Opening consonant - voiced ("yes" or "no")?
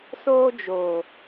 no